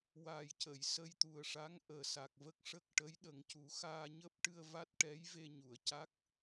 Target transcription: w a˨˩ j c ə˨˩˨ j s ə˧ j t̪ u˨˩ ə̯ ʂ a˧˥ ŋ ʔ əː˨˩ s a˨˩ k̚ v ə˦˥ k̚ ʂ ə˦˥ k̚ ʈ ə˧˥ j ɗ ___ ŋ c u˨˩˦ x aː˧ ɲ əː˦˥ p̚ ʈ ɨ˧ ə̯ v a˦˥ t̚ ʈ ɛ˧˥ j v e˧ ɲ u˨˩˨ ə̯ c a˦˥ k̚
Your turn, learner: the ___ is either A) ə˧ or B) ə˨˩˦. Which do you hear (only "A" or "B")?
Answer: B